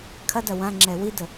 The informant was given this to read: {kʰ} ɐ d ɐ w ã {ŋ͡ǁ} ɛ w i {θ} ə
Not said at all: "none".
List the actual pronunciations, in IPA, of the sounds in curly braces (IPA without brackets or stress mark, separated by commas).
kʰ, ŋ͡ǁ, d